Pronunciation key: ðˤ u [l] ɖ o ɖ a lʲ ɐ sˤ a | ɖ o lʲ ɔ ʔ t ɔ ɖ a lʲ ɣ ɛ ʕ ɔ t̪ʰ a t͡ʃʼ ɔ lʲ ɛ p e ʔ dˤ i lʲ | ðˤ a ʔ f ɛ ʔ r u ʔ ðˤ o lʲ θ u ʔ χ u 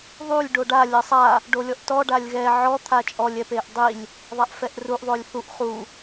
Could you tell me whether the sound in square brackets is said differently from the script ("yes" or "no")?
yes